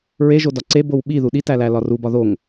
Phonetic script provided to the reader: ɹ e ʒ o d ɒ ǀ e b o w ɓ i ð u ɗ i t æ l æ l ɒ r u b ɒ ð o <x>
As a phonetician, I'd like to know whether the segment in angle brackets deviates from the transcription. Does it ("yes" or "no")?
yes